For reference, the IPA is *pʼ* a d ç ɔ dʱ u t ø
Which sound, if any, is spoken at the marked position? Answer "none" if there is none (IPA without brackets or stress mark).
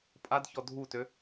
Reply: pʼ